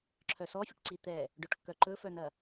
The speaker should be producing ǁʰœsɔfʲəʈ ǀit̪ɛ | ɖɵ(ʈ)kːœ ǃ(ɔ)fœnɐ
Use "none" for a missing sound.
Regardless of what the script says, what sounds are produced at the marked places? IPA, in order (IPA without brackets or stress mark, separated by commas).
ʈ, ɵ